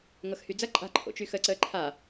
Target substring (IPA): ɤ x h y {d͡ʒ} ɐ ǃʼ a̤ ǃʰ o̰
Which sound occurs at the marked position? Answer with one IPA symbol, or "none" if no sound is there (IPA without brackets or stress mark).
d͡z